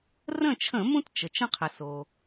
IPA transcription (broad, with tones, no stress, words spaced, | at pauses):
rə̃˥˨ t͡ʃʰə̃˧˩˧mũ˦t t͡ʃə˩ t͡ʃə̃˦qʰɘ˩ so˩